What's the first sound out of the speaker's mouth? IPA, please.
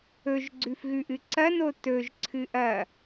ɵ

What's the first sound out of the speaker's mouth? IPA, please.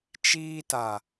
t͡ʃ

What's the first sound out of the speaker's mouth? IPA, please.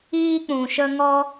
iː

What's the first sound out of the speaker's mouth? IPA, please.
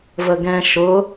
v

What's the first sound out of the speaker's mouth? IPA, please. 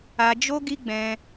a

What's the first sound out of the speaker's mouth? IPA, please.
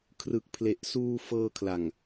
kʰ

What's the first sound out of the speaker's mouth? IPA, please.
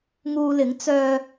ŋ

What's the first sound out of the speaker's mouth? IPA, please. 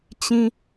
t͡ɕ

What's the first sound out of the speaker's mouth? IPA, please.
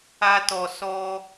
a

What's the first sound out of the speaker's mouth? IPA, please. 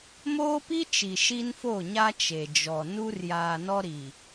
m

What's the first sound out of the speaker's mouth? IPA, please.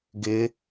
ɡ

